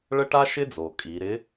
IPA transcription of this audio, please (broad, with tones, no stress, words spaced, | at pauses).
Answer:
ɭə˧ʈa˧ʃɪ˧d͡zo˩ kʼi˩˧ ɾɪ˧˥